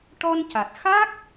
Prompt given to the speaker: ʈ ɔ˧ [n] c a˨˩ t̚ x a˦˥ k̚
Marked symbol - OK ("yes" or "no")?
yes